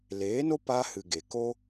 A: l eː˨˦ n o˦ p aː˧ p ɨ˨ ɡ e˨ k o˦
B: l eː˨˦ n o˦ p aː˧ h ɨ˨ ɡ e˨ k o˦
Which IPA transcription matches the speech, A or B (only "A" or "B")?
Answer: B